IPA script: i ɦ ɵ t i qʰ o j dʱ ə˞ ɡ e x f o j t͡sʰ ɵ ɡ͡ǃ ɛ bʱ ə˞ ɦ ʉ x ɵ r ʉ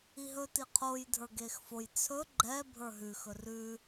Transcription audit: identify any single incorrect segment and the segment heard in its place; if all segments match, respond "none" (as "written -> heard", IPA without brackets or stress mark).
none